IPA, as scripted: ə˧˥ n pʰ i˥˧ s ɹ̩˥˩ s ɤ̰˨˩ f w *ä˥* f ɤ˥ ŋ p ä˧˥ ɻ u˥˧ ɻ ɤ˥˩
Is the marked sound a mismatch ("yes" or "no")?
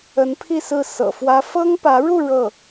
no